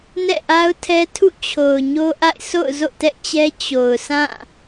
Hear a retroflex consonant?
no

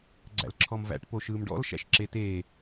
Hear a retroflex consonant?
yes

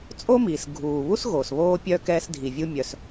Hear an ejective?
yes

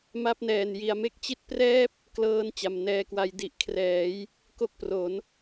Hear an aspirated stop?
yes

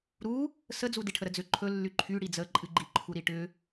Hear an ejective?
yes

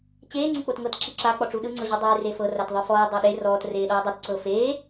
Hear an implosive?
yes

